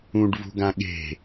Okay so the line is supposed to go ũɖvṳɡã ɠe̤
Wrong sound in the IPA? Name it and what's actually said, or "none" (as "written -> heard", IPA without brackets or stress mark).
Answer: none